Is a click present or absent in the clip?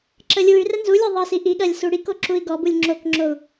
present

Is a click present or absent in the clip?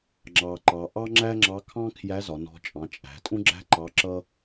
present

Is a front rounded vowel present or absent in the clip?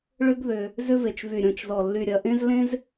present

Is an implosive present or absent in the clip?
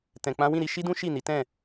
absent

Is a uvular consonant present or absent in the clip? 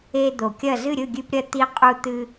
present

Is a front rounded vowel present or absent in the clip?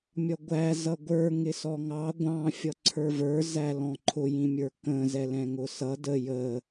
absent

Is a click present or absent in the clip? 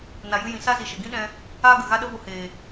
absent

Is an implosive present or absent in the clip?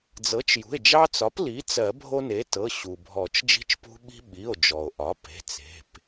present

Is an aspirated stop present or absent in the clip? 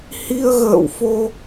absent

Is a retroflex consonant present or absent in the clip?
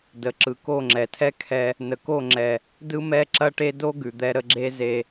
present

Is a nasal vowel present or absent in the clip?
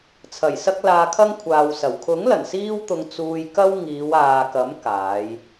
absent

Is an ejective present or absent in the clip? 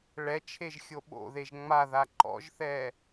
absent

